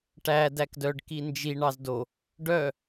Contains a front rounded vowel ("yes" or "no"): yes